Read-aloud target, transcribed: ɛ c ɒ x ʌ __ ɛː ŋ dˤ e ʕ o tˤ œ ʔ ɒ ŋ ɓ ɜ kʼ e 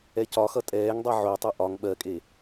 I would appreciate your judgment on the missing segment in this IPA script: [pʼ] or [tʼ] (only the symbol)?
tʼ